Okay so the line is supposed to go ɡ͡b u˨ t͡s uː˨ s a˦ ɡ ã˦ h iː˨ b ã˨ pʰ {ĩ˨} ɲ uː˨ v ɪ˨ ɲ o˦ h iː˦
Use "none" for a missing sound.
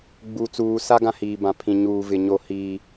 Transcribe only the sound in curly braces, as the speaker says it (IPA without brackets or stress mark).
ĩ˨